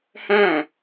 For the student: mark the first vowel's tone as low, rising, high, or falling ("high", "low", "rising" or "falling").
falling